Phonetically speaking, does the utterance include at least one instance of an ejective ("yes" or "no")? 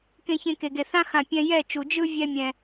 no